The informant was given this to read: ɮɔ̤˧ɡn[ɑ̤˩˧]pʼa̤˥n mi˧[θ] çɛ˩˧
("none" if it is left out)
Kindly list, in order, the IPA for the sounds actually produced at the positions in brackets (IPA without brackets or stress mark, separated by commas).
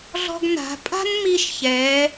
a̤˩˧, ʃ